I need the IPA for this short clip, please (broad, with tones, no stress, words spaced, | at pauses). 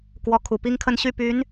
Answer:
kwɔ˧˥kʰu˨˩pi˥ŋkʰə˥˧n ɕy˥˩py˧˥n